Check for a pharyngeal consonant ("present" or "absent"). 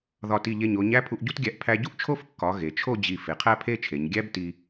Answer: absent